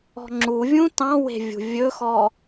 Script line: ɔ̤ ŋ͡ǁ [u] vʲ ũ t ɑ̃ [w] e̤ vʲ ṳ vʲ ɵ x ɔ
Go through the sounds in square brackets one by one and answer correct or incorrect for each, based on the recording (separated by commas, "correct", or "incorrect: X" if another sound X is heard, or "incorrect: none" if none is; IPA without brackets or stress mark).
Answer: correct, correct